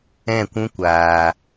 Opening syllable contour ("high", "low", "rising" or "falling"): falling